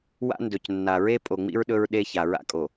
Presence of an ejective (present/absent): present